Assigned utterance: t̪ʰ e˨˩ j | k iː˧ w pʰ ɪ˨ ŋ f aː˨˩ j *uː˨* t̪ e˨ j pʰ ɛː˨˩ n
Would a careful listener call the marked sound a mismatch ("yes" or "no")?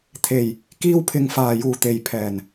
yes